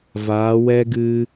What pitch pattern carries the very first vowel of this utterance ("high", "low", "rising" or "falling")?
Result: rising